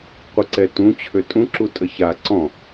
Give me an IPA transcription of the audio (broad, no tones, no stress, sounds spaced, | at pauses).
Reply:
qʷ ə ǀ ɛ t ũ t͡ɕʰ ø tʼ ũ ǁ u tʼ ə ç a ǀ ɔ̃